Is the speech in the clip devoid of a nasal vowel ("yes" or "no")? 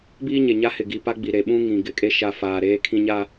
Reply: no